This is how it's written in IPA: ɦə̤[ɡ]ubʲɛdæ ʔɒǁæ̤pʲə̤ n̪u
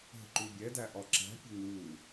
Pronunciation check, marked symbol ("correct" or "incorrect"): incorrect